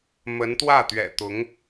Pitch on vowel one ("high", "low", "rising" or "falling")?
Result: rising